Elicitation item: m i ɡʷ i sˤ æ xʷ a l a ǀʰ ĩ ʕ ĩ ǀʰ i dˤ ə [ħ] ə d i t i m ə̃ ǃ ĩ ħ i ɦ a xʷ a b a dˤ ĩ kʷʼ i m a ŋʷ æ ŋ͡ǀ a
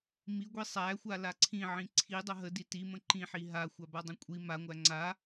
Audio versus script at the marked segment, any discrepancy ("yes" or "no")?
yes